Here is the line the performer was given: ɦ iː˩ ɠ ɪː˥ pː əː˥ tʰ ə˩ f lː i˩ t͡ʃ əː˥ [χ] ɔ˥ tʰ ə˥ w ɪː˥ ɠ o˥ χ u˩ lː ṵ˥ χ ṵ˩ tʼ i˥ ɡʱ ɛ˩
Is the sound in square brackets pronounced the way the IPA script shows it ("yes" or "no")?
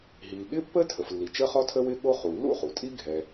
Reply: yes